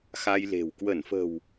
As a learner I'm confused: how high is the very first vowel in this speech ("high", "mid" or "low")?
low